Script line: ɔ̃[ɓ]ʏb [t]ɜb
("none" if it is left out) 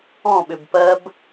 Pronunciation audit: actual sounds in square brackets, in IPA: ɓ, p

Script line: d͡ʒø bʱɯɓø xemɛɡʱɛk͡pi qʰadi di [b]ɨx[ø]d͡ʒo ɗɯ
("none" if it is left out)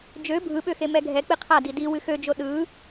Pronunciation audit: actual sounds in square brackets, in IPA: w, ø

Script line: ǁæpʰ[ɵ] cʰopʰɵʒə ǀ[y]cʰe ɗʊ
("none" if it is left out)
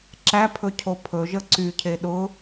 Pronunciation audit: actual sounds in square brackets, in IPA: ɵ, y

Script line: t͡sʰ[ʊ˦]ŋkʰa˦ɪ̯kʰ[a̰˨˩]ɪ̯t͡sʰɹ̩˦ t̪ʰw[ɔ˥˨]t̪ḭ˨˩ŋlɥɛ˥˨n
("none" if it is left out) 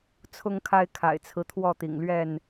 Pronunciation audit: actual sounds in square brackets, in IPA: ʊ˦, a̰˨˩, ɔ˥˨

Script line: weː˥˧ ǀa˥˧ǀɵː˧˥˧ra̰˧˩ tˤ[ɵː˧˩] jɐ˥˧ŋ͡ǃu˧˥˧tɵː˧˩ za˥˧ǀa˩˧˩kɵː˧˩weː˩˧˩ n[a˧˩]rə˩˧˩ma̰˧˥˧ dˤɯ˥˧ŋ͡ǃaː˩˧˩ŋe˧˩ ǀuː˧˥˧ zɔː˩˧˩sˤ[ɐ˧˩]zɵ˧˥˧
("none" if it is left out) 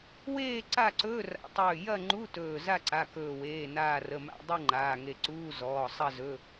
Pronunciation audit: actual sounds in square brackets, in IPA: ɵː˧˩, aː˧˩, ɐ˥˧

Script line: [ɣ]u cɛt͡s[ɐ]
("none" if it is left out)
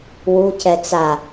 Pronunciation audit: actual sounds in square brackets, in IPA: w, a

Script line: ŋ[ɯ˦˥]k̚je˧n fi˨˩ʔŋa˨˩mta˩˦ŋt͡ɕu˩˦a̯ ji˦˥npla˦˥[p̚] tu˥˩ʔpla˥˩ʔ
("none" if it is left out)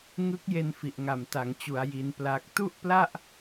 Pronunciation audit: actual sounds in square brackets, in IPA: ɯ˦˥, k̚

